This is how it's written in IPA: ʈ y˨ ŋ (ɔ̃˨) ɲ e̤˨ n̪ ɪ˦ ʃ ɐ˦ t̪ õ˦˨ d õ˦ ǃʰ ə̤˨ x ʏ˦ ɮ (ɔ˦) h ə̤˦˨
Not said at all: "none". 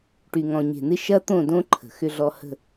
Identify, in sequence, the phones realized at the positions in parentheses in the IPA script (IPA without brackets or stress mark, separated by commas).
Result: ɔ̃˨, ɔ˦